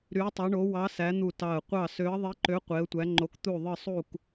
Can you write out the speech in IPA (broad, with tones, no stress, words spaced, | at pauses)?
ɾy˨˦ʊ̯tˤo˨˦ɳo˨˦ wɑ˨˦ sæ˨˦n̪u˧˩ tɑ˧˩ə̯ qʷɑ˧˩ sø˨˦ə̯ðˤi˨˦ǃø˨˦ qʷe˨˦ə̯tʷæ˨˦ŋ͡ǃo˨˦k t̪u˧˩ðˤɯ˧˩ sˤu˧˩k